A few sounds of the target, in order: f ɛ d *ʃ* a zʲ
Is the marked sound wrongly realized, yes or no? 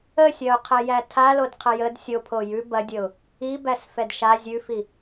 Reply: no